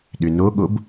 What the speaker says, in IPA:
ɗ ʏ n o ɠ o b

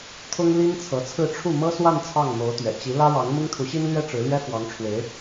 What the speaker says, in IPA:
t̪ʰ ʊ˥ ŋ l i˥ n t͡sʰ ɤ˧˥ t͡sʰ ɹ̩˥˧ ʈ͡ʂʰ u˥˩ m ɤ˥ s w a˥˧ n t͡sʰ ɑ˥˩ ŋ m o˧˥ ʊ̯ t̪ ɥ ɛ̰˨˩ t͡ɕ i˧˥ l ä˥ ɻ ɑ˧˥ ŋ m ʊ˥ ŋ t̪ʰ u˧˥ ɕ i˥ n l ɥ ɛ˥ ʈ͡ʂ ɻ̩˧˥ l ɥ ɛ˥ f w ɑ˧˥ ŋ ʈ͡ʂʰ w e˧˥ ɪ̯

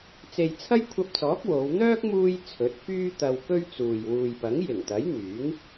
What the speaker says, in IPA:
t͡s e˨ j t͡sʰ ɐ˥ j kʷʰ ɐ˧ p̚ t͡s ɔː˨˥ k̚ w o˨˧ w n̪ œː˥ k̚ m uː˧ j t͡sʰ ɵ˨˥ t̚ f yː˥ t̪ ɐ˧ w k ɵ˥ ɥ t͡s uː˨ j w uː˨ j p ɐ˨˥ ŋ j ɪ˨˩ ŋ t̪ ɐ˨˥ j n̪ yː˨˥ ŋ

